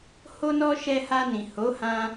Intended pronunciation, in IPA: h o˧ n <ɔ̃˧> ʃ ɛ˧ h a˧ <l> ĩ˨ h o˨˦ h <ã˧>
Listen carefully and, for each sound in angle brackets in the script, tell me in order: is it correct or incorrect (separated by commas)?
incorrect, incorrect, correct